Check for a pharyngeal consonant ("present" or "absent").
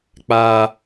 absent